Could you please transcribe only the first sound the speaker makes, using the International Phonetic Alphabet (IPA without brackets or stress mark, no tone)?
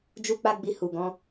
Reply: d͡ʒ